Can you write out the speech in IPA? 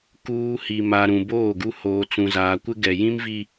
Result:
kuː˨ hi˨ma˨ ɾũ˨boː˦˨ɡu˦ hoː˨t͡sũ˨zaː˨kʷɪ˦ ɡɛ˨jĩ˦mvi˦

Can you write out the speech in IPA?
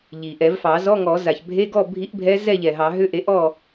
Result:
ʎi˩ʔɛ˨˩˦vfɑ˨˩˦ zɔ˧˥˧ŋɔ˨˩˦ za˩çbʱe˧˥˧ɡɔ˥˨ bʱi˧˥ʔbʱɛ˧˥ zɛ˥˨ʎɛ˩ɦɑ˨˩˦ɦʏ˧˥˧ ʔe˩˥ ʔɔ˥˨

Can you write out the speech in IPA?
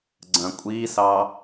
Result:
ɡ͡ǀɐ̃kʷʼisɑ

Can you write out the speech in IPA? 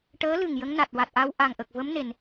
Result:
ʈəː˧˥lɨ˨˩ŋ jə˧˥ŋna˨˩t̚ wa˨˩t̚ʔa˧wʔa˨˩ŋʔə˨˩k̚ və˧˥mne˨˩˨n

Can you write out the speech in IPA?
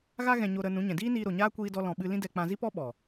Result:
ɣa˦ ɣɛ̃˧ɲo˧ɾə˧ nũ˨˦ɲɛ̃˨ diː˦niː˧ɾo˨ ɲaː˦ kʷiː˧dɔ˧lɔ̃˨ ɓɨ˧lĩ˦dɛ˧ k͡pã˧zi˦pɔ˦ ɓɔ˨

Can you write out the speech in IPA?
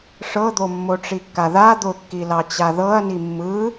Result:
ʂɤd̪o mːoʈ͡ʂikːaða d̪ʊkːilɑ t͡ɕaðɤɐ̯ni mːɯ

